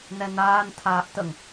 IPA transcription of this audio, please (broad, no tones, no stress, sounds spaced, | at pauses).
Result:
n ɛ n aː n tʰ aː ʔ t ə ŋ